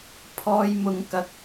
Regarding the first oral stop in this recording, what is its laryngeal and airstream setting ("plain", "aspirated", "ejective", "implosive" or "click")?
aspirated